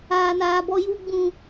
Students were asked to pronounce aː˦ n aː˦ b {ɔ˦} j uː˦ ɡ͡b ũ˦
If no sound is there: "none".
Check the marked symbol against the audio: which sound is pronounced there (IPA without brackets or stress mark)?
ɔ˦